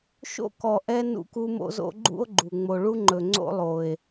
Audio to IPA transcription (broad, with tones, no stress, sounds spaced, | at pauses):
ʃ o̰˦˨ k ɔ˨ ʔ ɛ˧ n ṵ˧ k u˧ m o̰˧ z o̰˧ ɡ͡ǃ ṵ˦ o̯ ɡ͡ǃ u˨ ŋ͡m o˨ ɭ u˦ ŋ͡ǃ ɵ˨ ŋ͡ǀ o̰˦ lˠ o˨ e̯